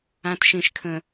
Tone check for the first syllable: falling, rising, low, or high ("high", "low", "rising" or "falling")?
low